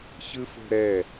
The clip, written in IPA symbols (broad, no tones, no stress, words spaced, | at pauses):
çɯfo̤ɾɛ